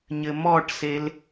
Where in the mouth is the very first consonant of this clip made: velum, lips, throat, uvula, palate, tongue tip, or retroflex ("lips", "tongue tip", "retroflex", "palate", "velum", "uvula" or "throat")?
palate